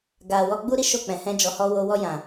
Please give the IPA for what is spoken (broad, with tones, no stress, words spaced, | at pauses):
ɡa˨wɔ˧ ɡ͡bu˧ɾi˦ ʃo˦˨k͡pɛ̃˨hɛ̃˧ d͡ʒɔ˨hɔ˧ wo˧wɔ˧jã˨